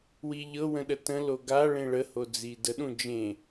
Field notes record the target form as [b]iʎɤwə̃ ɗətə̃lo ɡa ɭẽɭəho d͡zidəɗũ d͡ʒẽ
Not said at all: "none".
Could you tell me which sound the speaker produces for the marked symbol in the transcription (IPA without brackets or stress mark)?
w